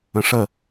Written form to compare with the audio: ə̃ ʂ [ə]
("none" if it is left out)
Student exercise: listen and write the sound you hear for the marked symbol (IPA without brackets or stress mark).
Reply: ə